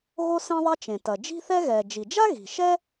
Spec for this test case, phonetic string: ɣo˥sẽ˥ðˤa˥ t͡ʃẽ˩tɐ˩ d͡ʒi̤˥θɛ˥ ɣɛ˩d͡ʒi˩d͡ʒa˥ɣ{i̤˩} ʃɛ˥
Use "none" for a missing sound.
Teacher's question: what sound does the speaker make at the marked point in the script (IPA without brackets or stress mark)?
i̤˩